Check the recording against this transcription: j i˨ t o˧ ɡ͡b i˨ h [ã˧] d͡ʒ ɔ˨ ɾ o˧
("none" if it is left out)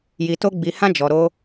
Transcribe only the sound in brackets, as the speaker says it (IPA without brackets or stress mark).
ã˧